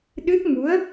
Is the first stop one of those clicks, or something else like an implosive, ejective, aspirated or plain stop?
implosive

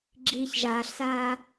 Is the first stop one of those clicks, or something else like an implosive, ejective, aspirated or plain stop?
click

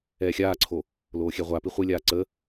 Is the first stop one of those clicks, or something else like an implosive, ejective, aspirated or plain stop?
click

